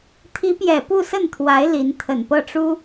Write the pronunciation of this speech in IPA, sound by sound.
t̪ʰi˧˥pjɛ˨˩ pu˥˧sə˥˩nt̪ʰwa˧˥ɪ̯ li˧˥n t̪ʰə˨˩npɤ˥˩ʈ͡ʂu˥

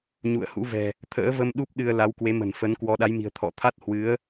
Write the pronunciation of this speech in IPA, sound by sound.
ɲṵ˧˨ə̯hṵ˧˥vɛ̤˨˩ | t̪ʰə̰ː˧˥və˧m ɗu˦˥p̚ɗɨ˧ə̯ la˨˦wkwe˨˦mə̤˨˩n fə˨˦n kwɔ˧ ɗa˨˦jmi̤˨˩ə̯ t̪ʰɔ̰˧˨t̪ʰa˦˥t̚ hwɨ˨˦ə̯

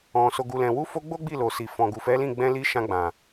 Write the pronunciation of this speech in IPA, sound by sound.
ɔ̃˨ so˨ɡu˨lɛ̃˨ wu˨˦fo˧ ɡ͡bo˦ɡ͡bi˦˨lo˨si˨ fɔ̃˨ɡu˨fɛ˨˦lĩ˦˨ ɡ͡bɛ̃˧li˧ ʃã˧ɡ͡bã˨

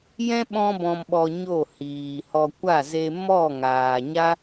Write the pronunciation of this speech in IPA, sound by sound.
jɛ̃˦ ɓɔ̃˦ bɔ̃˨mɓɔ˨ ɲo˦˨hiː˨hɔ˧ kʷa˦˨ze˧mɔ˦˨ŋaː˨ ɲa˦

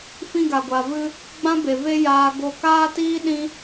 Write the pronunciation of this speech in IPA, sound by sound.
fĩ˧ɡa˨ɡʷa˨vɨ˧ | ɡ͡bã˦be˨ ve˦ jaː˦ ɡo˧kaː˦tiː˦ ɗĩ˦

